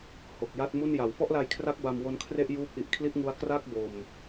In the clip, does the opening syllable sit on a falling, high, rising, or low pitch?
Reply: low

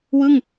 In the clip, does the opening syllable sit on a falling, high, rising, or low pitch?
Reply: falling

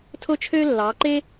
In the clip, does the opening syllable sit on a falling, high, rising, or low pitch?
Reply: high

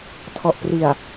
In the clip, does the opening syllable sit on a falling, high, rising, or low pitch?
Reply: low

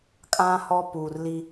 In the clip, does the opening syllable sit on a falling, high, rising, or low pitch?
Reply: high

